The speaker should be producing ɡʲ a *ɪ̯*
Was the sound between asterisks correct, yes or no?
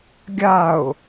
no